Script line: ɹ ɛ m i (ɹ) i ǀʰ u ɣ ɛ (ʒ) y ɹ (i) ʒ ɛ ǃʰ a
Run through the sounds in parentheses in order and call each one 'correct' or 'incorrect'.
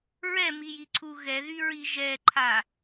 incorrect: j, incorrect: ð, correct

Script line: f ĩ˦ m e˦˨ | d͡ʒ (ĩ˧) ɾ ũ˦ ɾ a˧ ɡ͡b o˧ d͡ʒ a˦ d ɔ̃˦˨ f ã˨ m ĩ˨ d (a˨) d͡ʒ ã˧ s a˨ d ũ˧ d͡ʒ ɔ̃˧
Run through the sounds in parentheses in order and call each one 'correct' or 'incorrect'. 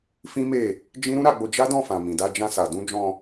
incorrect: ĩ˦, incorrect: a˧

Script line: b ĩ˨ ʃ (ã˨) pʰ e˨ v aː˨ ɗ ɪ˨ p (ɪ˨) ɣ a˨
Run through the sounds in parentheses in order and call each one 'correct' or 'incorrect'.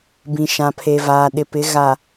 correct, incorrect: ɪ˨˦

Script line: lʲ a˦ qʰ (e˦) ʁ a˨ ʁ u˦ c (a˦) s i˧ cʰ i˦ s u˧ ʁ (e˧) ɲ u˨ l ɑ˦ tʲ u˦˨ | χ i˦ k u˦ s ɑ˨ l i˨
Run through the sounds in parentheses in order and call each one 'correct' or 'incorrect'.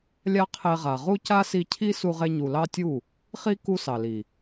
incorrect: e˧, correct, correct

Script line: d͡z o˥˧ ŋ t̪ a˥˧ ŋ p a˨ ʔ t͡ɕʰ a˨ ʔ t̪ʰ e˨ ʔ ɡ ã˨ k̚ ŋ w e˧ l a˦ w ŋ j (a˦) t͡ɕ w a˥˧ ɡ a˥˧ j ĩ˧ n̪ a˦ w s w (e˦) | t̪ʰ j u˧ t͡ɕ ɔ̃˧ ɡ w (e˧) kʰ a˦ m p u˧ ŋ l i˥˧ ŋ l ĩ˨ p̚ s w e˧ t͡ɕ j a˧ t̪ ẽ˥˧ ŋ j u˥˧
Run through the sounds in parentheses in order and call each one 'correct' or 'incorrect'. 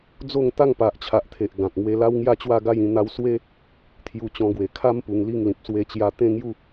incorrect: a˥˧, correct, incorrect: e˨˩

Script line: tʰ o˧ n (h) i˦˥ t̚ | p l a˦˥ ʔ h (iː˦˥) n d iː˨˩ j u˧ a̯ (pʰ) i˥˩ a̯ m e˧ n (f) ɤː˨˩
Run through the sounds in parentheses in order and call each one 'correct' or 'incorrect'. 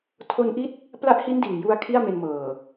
incorrect: ʔ, incorrect: i˦˥, incorrect: kʰ, incorrect: m

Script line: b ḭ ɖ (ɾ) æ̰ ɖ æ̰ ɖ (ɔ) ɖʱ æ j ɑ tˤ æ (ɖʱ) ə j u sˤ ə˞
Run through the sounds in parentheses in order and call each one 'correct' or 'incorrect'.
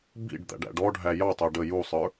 incorrect: d̪, correct, incorrect: ɖ

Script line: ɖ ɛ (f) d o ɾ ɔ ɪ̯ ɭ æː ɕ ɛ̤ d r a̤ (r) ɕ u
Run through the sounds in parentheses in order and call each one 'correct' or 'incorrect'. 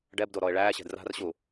incorrect: b, correct

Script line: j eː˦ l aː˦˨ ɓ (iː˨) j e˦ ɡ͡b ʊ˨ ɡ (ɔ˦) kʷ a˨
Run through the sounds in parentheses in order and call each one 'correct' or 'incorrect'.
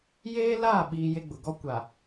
correct, correct

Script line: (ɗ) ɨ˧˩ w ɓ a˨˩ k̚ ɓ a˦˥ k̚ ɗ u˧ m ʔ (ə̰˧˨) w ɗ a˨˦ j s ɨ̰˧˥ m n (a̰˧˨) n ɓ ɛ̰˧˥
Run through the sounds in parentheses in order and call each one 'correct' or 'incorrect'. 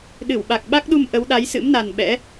correct, incorrect: ə˨˦, incorrect: a˨˩

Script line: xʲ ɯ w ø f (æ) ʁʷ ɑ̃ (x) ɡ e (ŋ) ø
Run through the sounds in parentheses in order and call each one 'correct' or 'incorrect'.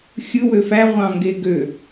correct, incorrect: ŋ, incorrect: ɡ

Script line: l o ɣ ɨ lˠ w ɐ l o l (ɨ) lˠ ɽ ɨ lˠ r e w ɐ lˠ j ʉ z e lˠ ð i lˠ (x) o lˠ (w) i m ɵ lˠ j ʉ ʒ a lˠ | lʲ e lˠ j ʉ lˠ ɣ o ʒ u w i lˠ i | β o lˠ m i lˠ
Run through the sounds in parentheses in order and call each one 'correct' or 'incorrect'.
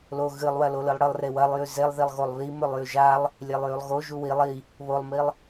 correct, incorrect: ɣ, incorrect: β

